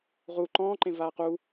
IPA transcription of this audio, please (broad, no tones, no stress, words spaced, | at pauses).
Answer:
ʁu ǃɔ̃ːǃẽ vaːqu